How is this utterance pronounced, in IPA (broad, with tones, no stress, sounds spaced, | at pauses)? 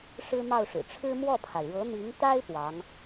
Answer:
ʂ ɻ̩˥ m ɑ˥˩ ʊ̯ ʂ ɻ̩˨˩ ʈ͡ʂʰ ɻ̩˥ m w ɔ˥˩ pʰ a˩ ɪ̯ ɻ ɤ˧˥ n̪ i˧˥ ŋ t̪ a˥ ɪ̯ p w ɑ˧˥ ŋ